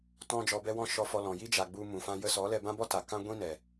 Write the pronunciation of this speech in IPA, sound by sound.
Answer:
t ɔ̃˧ d͡ʒ ɔ˨ b ɛ˧ w ɔ̃˧ ʃ ɔ˧ f ɔ˧ l ɔ̃˨ j i˦ d͡ʒ a˨ ɡ͡b u˧ m ũ˨ f ã˧ j ə˧ s ɔ˨˦ l ɛ˧ b ã˦ b ɔ˦ t a˨ k ã˦ ɡʷ ĩ˦ n ɛ˨

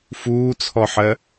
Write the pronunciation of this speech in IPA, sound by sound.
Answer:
f uː t͡sʰ ɔ ħ ɜ

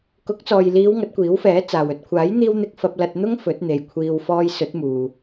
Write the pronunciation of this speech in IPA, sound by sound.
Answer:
k ʊ˨˥ k̚ t͡s ɔː˨ j l iː˨˧ w ŋ ɐ˨˥ t̚ kʷ iː˨˥ w f ɛː˨˥ t͡s aː˨ w ɵ˨ t̚ kʷʰ aː˨˥ j n̪ iː˧ w n̪ ɪ˧ k̚ f ɐ˧ p̚ l ɐ˧ t̚ n̪ ʊ˥ ŋ f ɵ˨˥ t̚ n̪ e˨ j kʷʰ iː˧ w f ɔː˧ j s ɵ˨˥ t̚ m uː˨

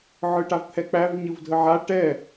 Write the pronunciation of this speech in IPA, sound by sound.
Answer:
ʕ ɯ ʈ a v t̪ʰ ɛ k͡p æ v ɲ ɯ v dʱ ə ʕ a ʈ ɛ

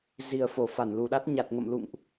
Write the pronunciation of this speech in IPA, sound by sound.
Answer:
z i˨˩ ə̯ f o˧˩ f a˧˩ n l u˨˩ ɗ a˦˥ t̚ ɲ a˨˩ t̚ ŋ ə̰˧˨ m l ṵ˧˨ ŋ ʔ

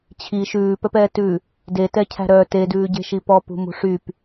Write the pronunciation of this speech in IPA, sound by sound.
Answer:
t͡ɕʰ i ʃ ʉː p œ p ɛː t ʉ | d e t ɛ cʰ æ̤ ɾ œ t e d ʉː ɟ e̤ ʃ i p ɔ p ṳ m ṳ ʂ y p

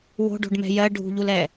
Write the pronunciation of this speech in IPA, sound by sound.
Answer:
w o̤ ɖ o̤ ɖ m ɛ̤ j ɜ ɖʱ ṳ ʎ u l ɛ

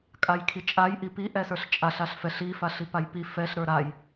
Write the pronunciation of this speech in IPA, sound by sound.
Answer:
kʼ a j kʰ i t͡ʃʼ a j ʔ i p i ʔ ɛ s ə˞ ɬ t͡ʃʼ a ɬ a ɬ f ɛ ɬ i f a ɬ i p a j p i f ɛ ɬ ɾ ə˞ ɾ a j

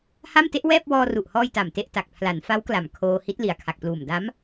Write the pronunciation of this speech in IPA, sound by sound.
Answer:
h a˥˩ m t e˦˥ ʔ w ɛː˥˩ p̚ w ɔː˧ r u˨˩ ʔ h ɔː˧ j t a˨˩ m t e˥˩ ʔ t a˨˩ k̚ pʰ l a˩˦ n f a˦˥ w k l a˨˩ m kʰ oː˧ h i˦˥ t̚ l i˨˩ a̯ kʰ a˨˩ k̚ p l uː˨˩ m d a˦˥ m

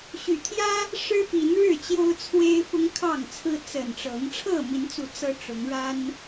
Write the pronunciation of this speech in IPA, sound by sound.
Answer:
ɕ y˨˩ t̪ʰ j ä˦ | ʂ ɻ̩˦ p i˨˦ n ɻ ɻ̩˥˨ t͡ɕ j o˦ ʊ̯ t͡sʰ w e˦ ɪ̯ f ʊ˦ ŋ kʰ ɑ˥˨ ŋ t͡sʰ ɹ̩˦ t͡s ə˨˩ n ʈ͡ʂ ɤ˨˦ ŋ ʈ͡ʂʰ ɤ˥˨ m i˨˦ n t͡s u˨˦ t͡s ɤ˦ ʈ͡ʂ ʊ˨˦ ŋ ɻ a˦ n

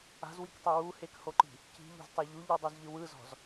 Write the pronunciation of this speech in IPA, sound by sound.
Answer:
a̤ z w i k tˤ e w u h e k h o ǃ i̤ | c i̤ ʎ o̤ z tˤ a ʎ u ʎ ɯ dˤ u z ʎ ɯ w ɯ z ɔ̤ z

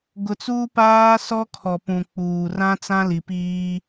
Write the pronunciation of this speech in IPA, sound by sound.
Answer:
ɡ ʊ˨ t͡s uː˦ p aː˦ s ɔ˦ kʰ ɔ˨ p ũ˨ k͡p uː˨ r ã˦ t͡s ã˦ l i˨ p iː˦

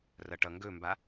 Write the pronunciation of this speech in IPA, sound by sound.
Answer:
r ʌ ʈ ʌ ŋ ɡ ɵ m b a

